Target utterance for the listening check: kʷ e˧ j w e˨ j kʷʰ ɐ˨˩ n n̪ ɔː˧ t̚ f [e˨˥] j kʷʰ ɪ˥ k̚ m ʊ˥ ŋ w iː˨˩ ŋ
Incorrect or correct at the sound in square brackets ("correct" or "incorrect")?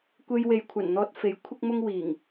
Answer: correct